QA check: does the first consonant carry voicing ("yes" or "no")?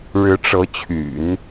yes